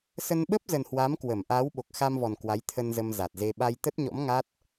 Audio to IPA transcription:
s ə˧ n ɓ ə˦˥ p̚ z ə˨˩ n h w a˨˦ m k w ə˧˩ m ʔ a˨˦ w ɓ o˨˩ k̚ x a˧ m v ɔ˨˩ n k w a˨˦ j t̪ʰ ə˧ n z ə˧ m z a˨˩ t̚ z e˧ ɓ a˧ j t̪ ə˦˥ t̚ ɲ ɔ̰˧˥ m ŋ a˦˥ t̚

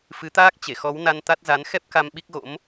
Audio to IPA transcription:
f ɨ˨˦ t̪ aː˦˥ k̚ t͡ɕ e˧˩ x ɔ˨˦ w n a˧ n t̪ a˦˥ t̚ z a˨˦ n x ɛ˦˥ p̚ k a˧ m ɓ i˦˥ k̚ ɣ o̰˧˥ m

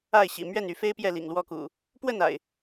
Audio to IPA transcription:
a˥˨ ɪ̯ ɕ ḭ˨˩ m ɥ ɛ˥˨ n y˨˦ f e˦ ɪ̯ p j ɛ˥˨ l ḭ˨˩ ŋ l w ɔ˥˨ k ṵ˨˩ | p w ə˥˨ n a̰˨˩ ɪ̯

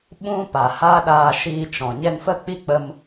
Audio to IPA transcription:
ɓ ũ˦ p a˨ h a˦ ɗ aː˧ ʃ iː˧ t͡ʃ ɔ̃˨ ɲ ɛ˧ n f ə˦˨ k͡p i˦ k͡p ə˧ m

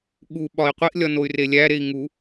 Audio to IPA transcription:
ɠ u ɓ ɒ i̯ qʷ i ʔ lʲ ɒ n o y̯ r e lʲ æ ɾ e i̯ ŋ u

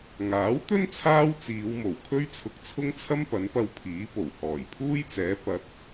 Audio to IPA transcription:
ŋ aː˨˥ w t̪ ɵ˥ n t͡sʰ aː˥ w t͡s iː˨˧ w m o˨˩ w kʰ ɵ˥ ɥ t͡sʰ ʊ˧ k̚ t͡sʰ ʊ˥ ŋ t͡sʰ ɐ˥ m p ɐ˨˥ n p ɐ˧ w pʰ iː˨˥ p o˨˩ w h ɔː˨˩ j pʰ uː˥ j t͡s ɛː˨˥ p ɐ˨˥ t̚

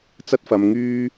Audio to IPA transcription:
t͡s ɐ˥ t̚ f ɐ˧ m ŋ yː˥

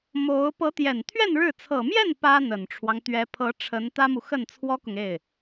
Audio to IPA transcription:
m o˧˥ ʊ̯ p ɤ˧˥ t̪ j ɛ˨˩ n t̪ʰ ɥ ɛ˥˧ n ɻ ɻ̩˥˩ t͡sʰ ɤ˨˩ m j ɛ˥˩ n p ä˥ n̪ ə˨˩ n ʈ͡ʂʰ w ɑ˦ ŋ t̪ ɥ ɛ˧˥ pʰ ɤ˧˥ ʈ͡ʂʰ ə˧˥ n t̪ ä˥ m u˨ x ə˥˩ n t͡sʰ w ɔ˥ k ʊ˨ ŋ e˥˩ ɪ̯

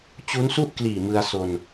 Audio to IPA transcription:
t͡ɕ u˦˥ n s u˥˩ ʔ k l iː˨˩ m ɯ˧ a̯ s o˧ n

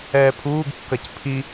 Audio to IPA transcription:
ɛː pʰ uː ɡ kː ɐ c pʰ i

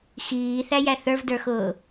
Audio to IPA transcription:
x iː θ æ j æ θ ə˞ v d ə˞ x ʊː

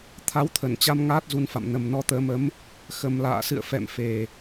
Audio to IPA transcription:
t̪ʰ a˨˦ w t̪ʰ ə˧˩ n t͡ɕ a˧ m ŋ aː˦˥ t̚ z u˧ n f a̰˧˨ m n ə˨˩ m n ɔ˧ t̪ əː˨˦ m ə˨˦ m | x ə˨˩ m l a̰ː˧˨ s ɨ̰˧˨ ə̯ f ɛ̰˧˨ m f e˨˩

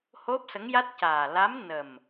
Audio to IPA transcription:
h o˦˥ p̚ s ə˧˥ ŋ j a˦˥ t̚ c aː˨˩ l a˧˥ m n ə˨˩ m

